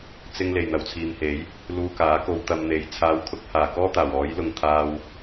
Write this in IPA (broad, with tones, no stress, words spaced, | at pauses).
t͡sɪ˥ŋ le˨jn̪ɐ˨wt͡sʰiː˨mhe˨˥j | luː˧kaː˨˥ko˧w t̪ɐ˧mn̪e˨˧j t͡sʰaː˨˧wkʰʊ˨˥k̚haː˨˩ kɔː˥t̪aː˨˩wɔː˨˥jlʊ˨ŋ t̪ʰaː˧w